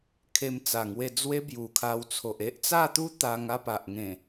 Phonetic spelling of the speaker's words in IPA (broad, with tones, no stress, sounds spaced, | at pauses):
kʰ e˧ m t͡s a˨˩ ŋ w e˧ d͡z w e˧ b j u˨˩ kʰ a˧ w t͡sʰ o˨ ʔ e˦ ʔ t͡s a˥˧ t̪ u˦ t̪ a˧ ŋ a˥˧ p a˨ ʔ ŋ ẽ˨˩